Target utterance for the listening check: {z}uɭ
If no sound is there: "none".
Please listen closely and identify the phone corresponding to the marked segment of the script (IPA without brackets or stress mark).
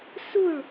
s